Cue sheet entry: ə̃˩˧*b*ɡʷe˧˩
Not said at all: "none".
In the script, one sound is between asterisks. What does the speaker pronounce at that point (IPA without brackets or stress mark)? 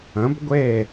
b